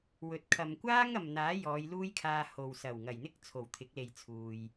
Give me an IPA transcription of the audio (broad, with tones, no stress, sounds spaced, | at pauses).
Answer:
w ɵ˨ t̚ kʰ ɐ˨ m kʷ aː˥ ŋ ɐ˨ m n̪ aː˨˥ j ɔː˨˧ j l uː˥ j kʰ aː˧ h o˨ w s ɐ˨˩ w ŋ ɐ˨˩ j n̪ ɪ˥ k̚ t͡sʰ o˨˩ w t̪ʰ ɪ˨˥ k̚ l e˨ j t͡sʰ uː˨ j